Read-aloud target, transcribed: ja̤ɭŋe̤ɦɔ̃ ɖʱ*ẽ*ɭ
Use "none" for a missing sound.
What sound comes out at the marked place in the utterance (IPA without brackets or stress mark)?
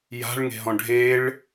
e